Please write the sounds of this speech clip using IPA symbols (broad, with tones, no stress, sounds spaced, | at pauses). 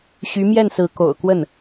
ɕ y˧˥ m j ɛ˥˩ n s ɹ̩˧˥ k o̰˨˩ ʊ̯ k w ə˥˩ n